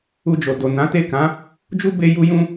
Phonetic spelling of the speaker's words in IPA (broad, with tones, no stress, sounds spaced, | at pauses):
u˧ d͡ʒ o˨ d o˨ n ã˨˦ t e˦˨ k ã˨˦ | d͡ʒ u˦ b e˧ j u˧ j ũ˧